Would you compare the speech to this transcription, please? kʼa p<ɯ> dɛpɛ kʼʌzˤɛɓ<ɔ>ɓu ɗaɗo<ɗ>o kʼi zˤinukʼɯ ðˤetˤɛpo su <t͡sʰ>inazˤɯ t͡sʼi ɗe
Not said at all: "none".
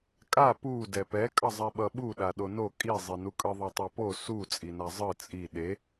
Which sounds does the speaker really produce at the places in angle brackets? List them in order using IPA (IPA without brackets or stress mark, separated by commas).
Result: u, ʌ, n, t͡sʼ